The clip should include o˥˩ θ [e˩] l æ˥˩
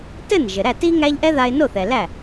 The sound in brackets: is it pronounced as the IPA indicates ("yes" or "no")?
no